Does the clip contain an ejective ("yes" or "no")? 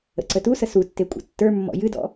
yes